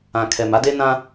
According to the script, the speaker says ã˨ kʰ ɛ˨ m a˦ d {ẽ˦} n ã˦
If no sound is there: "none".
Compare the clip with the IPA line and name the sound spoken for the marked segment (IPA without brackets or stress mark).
e˦